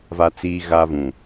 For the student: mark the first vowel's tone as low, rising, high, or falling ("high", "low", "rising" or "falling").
high